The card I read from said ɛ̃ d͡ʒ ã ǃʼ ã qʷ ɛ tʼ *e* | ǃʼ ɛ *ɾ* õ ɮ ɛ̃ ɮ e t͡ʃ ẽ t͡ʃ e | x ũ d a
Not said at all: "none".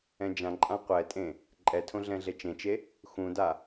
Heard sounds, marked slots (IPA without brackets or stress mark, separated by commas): ẽ, tʰ